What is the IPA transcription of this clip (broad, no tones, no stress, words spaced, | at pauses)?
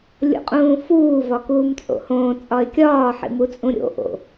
lʲo̰qʼũːfuː vɒkuːmt͡sʼo̰hõː t͡sʼɒɪ̯kʲɒː ħḭmut͡sʼũɾʲo̰ ʔo̰